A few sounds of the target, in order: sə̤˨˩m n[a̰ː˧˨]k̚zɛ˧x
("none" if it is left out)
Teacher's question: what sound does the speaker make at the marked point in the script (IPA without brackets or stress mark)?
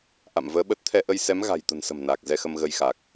aː˨˩